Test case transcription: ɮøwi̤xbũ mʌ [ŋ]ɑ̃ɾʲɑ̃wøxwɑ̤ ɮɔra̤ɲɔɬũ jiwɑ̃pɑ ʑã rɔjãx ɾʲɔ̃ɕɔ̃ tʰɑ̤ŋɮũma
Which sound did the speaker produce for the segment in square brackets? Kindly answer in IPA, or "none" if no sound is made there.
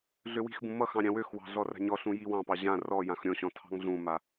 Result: x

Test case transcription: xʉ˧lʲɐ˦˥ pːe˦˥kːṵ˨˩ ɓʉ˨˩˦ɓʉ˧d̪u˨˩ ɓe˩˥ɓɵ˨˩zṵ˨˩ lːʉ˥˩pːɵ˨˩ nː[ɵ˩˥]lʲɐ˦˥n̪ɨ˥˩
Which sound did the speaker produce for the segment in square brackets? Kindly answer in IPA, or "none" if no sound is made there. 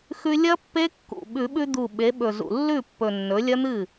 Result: ɵ˩˥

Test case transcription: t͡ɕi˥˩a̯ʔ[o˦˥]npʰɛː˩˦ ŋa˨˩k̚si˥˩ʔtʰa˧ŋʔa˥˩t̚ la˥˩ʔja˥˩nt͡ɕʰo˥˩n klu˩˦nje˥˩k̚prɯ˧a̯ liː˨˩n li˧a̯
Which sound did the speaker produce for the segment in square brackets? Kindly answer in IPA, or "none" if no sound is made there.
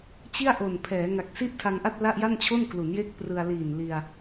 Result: o˨˩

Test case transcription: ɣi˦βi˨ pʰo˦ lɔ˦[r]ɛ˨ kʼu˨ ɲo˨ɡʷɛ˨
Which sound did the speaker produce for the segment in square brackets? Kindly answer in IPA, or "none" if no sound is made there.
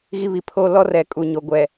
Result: r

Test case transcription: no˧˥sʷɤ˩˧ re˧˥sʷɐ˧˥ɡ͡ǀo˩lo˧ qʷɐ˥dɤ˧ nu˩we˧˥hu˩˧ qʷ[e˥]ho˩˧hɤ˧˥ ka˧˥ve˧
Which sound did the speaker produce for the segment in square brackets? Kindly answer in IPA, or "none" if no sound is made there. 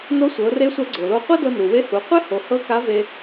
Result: e˥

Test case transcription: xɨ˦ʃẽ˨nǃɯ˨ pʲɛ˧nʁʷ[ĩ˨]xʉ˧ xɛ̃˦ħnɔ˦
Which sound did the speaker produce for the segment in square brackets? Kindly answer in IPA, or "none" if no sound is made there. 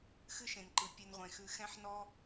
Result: ẽ˨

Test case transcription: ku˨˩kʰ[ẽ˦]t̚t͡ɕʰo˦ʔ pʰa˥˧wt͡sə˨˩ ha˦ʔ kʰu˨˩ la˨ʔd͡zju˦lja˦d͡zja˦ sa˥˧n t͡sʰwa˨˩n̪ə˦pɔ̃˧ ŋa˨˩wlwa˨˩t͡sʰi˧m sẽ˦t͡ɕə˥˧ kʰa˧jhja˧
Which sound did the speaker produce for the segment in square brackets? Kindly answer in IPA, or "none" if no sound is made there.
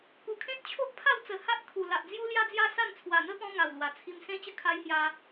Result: ẽ˦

